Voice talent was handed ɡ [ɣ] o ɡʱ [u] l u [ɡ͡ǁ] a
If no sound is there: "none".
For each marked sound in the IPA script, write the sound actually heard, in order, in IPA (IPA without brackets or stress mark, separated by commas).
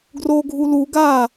r, u, ɡ